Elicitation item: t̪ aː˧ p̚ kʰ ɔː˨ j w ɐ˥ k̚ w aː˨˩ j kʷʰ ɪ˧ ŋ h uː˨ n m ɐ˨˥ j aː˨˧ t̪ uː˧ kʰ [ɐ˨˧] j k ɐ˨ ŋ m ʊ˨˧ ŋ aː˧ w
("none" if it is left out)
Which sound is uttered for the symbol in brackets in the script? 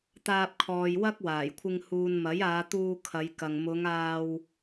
ɐ˨˧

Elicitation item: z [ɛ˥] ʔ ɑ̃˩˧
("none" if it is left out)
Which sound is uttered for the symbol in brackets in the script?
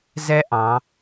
ɛ˥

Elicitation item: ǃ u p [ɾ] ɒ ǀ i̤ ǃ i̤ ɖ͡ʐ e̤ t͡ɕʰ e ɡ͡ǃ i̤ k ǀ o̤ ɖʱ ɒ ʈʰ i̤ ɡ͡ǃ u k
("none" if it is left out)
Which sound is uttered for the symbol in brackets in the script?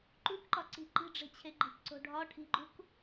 ǃ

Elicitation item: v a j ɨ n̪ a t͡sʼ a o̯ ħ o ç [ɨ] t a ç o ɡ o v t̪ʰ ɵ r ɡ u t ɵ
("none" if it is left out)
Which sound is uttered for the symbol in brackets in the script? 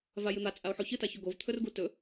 ɨ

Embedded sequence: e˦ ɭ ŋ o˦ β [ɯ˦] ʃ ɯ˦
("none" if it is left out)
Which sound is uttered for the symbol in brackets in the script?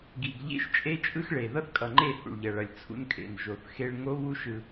u˦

